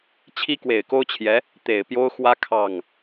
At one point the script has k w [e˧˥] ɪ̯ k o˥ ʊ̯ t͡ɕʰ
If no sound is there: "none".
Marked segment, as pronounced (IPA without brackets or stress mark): e˨˩